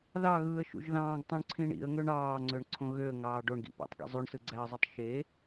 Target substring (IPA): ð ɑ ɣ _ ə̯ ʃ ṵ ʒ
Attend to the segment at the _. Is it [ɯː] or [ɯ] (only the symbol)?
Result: ɯː